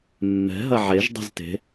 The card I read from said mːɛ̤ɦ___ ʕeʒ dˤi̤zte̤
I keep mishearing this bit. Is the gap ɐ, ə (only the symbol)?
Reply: ɐ